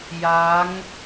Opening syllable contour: rising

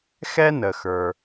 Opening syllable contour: high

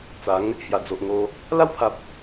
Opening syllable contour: rising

